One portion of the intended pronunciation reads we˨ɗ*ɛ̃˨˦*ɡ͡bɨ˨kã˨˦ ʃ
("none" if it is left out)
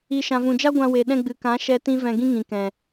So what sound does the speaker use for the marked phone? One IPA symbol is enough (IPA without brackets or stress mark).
ɛ̃˧